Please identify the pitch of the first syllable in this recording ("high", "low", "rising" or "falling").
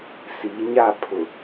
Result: rising